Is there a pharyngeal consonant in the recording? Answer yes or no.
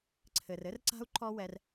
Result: no